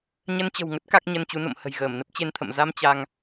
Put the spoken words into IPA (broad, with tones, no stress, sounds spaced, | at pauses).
ɲ ə˧ n t͡ɕ ə̤˨˩ w ŋ ə˦˥ t̚ k a˦˥ k̚ ɲ ə˧ n t͡ɕ u˨˦ n o̰˧˨ m h ə̤˨˩ j ɣ əː˧˩ m n ə˦˥ p̚ t͡ɕ e˧ n t̪ʰ ə̰˧˨ m z a˧ m t͡ɕ a˧ ŋ